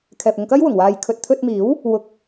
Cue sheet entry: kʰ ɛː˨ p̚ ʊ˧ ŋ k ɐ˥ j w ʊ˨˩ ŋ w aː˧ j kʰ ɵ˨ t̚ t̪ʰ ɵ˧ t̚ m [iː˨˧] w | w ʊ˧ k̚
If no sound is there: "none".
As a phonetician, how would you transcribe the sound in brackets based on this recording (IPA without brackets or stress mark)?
iː˨˥